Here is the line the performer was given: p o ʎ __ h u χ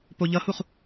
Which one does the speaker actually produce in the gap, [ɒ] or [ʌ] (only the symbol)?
ʌ